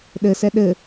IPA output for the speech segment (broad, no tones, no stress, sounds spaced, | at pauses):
ɗ ɘ s ɛ ɗ ɘ